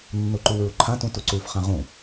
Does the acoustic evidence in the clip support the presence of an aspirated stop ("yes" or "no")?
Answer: yes